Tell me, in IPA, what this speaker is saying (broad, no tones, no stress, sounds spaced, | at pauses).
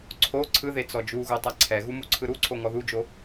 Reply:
ǀʰ o ǀʰ ɯ ð e t͡s ɔ d͡ʒ u ɣ o tˤ a ǀʰ ɛ ɣ u m u ǀʰ ɯ ɾ u ǀʰ o ŋ ɔ ð u d͡ʒ o